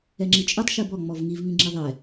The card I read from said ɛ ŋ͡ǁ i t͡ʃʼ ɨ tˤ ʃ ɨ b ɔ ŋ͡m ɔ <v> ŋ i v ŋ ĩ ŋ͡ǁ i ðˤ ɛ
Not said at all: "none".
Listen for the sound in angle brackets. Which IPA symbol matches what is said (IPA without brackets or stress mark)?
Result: v